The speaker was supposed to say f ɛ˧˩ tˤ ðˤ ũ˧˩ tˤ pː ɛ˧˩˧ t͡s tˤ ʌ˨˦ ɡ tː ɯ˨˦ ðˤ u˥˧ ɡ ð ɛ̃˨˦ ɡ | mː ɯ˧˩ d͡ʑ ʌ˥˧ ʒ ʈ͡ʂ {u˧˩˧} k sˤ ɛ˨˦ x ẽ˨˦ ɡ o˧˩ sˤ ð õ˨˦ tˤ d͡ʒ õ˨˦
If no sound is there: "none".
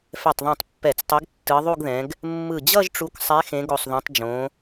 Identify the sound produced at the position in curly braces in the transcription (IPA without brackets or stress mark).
u˨˦